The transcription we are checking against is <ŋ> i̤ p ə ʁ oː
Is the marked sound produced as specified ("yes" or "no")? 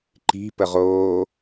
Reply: no